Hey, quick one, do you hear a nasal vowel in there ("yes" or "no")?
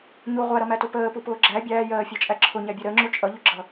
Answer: no